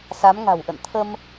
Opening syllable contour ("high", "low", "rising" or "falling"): rising